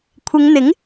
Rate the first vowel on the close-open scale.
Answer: close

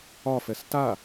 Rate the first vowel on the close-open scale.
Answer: open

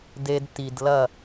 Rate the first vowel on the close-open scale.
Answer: mid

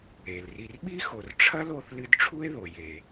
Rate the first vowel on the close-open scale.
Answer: mid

